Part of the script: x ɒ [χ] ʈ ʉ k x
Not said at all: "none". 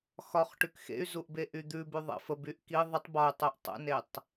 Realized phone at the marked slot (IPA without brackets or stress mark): χ